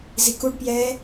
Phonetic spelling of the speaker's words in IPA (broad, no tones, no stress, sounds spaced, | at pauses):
z i k u ɖ p j ɛː